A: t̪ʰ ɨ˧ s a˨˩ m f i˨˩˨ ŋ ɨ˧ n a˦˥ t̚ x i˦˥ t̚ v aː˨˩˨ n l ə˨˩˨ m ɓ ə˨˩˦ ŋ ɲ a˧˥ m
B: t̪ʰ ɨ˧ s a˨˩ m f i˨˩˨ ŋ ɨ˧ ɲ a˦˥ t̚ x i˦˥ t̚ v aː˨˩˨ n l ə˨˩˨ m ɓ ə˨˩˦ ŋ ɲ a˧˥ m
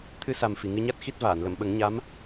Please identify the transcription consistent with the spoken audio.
B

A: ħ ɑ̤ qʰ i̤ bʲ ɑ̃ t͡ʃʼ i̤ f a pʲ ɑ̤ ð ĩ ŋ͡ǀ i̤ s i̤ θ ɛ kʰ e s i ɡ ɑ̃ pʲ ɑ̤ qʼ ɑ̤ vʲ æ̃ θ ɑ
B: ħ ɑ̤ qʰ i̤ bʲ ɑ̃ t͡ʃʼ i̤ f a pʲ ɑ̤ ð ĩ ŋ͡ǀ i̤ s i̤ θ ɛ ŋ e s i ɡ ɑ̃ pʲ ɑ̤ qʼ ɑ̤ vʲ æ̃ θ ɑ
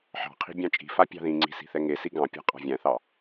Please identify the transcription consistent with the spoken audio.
B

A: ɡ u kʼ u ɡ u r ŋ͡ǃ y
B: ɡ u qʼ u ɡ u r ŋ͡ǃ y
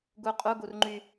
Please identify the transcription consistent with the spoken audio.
B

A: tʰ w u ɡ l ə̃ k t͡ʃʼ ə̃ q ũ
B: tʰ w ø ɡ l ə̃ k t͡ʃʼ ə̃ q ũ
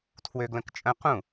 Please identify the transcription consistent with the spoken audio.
B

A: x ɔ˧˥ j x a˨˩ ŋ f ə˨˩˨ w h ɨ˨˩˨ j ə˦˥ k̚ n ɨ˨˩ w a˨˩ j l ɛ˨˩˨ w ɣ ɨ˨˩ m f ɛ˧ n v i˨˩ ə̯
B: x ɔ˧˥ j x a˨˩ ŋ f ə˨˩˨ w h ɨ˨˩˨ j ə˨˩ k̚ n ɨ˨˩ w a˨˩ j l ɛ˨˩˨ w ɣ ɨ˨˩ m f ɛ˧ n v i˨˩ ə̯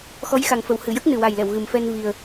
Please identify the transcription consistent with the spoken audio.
A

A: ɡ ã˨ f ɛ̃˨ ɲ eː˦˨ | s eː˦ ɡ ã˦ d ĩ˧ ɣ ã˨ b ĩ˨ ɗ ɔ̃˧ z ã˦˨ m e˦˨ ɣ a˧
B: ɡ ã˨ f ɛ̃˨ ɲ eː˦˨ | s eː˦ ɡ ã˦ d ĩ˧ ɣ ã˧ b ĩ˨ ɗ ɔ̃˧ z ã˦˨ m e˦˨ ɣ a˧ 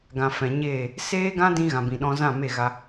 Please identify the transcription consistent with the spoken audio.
A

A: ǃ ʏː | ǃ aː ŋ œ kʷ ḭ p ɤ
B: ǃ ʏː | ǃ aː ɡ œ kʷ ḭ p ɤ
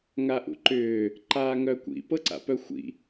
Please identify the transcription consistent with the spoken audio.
A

